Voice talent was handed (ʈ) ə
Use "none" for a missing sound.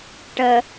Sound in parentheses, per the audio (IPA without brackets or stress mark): ʈ